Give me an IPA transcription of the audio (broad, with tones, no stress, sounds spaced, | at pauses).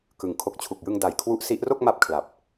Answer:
k ɯ˩˦ ŋ kʰ o˨˩ k̚ t͡ɕʰ u˨˩ k̚ j ɯ˧ ŋ d a˨˩ j kʰ w u˦˥ ʔ s i˦˥ ʔ r o˥˩ k̚ m a˦˥ p̚ kʰ l a˨˩ p̚